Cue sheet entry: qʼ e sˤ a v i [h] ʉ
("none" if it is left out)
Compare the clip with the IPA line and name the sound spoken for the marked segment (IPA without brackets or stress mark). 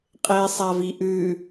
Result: ʔ